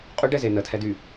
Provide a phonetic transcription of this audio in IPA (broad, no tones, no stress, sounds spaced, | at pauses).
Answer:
qʼ y ɖ ɛ z e n ə tʰ ɛ d y